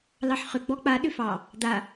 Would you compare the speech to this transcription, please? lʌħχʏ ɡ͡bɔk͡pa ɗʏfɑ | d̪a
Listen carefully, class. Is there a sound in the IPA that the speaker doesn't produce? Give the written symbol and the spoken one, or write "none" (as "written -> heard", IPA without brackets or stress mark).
ʌ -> ɑ